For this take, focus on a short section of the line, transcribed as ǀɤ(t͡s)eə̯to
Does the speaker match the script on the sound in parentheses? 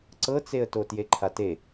yes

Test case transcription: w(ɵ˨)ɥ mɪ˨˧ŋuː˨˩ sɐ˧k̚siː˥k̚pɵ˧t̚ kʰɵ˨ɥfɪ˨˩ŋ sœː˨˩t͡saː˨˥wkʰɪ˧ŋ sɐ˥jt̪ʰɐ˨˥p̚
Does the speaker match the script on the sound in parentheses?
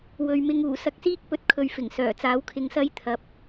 yes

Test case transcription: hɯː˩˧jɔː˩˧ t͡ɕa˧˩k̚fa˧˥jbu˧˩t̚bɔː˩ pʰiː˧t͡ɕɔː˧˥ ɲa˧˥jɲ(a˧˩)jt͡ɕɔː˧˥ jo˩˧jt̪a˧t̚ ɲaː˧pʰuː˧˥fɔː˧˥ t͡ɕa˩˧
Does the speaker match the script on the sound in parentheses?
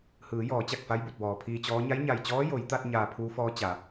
yes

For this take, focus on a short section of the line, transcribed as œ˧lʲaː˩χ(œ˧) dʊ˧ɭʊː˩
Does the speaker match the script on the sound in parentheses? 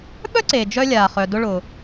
no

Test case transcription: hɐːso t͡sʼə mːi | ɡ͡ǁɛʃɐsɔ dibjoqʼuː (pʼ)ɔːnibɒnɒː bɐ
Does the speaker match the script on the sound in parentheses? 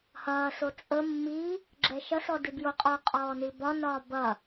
no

